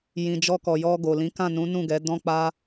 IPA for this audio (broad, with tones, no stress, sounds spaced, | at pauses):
j ĩ˨ d͡ʒ ɔ˧ k ɔ˨ j ɔ˧ ɡ o˨ l ĩ˨˦ k ã˦˨ n ũ˨˦ n ũ˦˨ ɡ ɛ˨˦ d ɔ̃˦ k͡p a˦